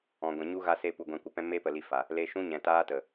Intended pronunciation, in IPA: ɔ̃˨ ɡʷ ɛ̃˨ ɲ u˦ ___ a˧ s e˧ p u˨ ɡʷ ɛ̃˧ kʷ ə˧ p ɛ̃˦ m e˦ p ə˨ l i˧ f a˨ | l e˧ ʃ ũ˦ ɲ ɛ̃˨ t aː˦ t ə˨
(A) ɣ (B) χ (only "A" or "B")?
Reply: A